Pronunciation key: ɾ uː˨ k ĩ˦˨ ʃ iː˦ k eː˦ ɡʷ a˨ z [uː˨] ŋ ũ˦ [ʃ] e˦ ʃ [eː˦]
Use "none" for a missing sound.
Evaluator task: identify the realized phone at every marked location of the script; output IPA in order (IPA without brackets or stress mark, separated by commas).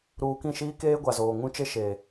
oː˨, t͡ʃ, eː˨